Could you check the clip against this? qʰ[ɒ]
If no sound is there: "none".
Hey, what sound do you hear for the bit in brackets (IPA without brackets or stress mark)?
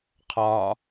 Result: ɒ